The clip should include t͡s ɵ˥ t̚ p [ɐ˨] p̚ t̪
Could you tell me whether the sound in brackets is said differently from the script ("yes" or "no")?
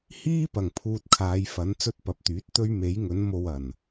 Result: no